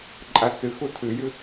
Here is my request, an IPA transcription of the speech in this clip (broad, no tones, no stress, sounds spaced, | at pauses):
ǃʼ a t͡s ɨ x u tʰ ɨ j ɨ